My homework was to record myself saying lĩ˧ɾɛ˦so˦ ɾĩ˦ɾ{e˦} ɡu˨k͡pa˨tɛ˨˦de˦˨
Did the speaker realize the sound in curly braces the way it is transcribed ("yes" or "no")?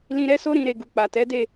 no